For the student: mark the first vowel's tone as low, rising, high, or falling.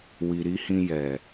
low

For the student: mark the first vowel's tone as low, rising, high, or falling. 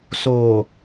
low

